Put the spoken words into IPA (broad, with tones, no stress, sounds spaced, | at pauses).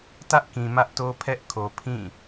t ä˦ ʔ k ĩ˨ m ä˦ ʔ t o˦ pʰ ɛ˦ ʔ kʰ o˨ pʰ ĩ˦˨